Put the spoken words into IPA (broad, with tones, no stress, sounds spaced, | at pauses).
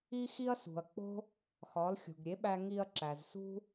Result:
i˥ x i˥ ɐ̯ s ṳ˩ ɐ̯ k͡p o̤˥ | x ɒ˩˥ l xʲ ṳ˩ ɡ ɾʲ e˩˥ ɓ æ˧ ŋ i˧ ɐ̯ ǁ æ˩ z s ṳ˥